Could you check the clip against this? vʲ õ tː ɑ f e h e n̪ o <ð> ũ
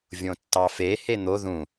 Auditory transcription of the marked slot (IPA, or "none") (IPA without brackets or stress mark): ð